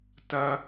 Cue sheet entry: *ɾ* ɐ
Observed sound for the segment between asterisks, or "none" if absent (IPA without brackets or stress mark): t